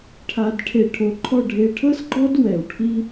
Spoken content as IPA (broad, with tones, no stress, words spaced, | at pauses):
ʈʰa˧dʈʰe˧˩ ʈʰo˧ǃʰɔ˥˧ ɖʱe˧ʈʰɤ˥sɡ͡ǃɔ˥d wɛ˧˩wʈʰi˥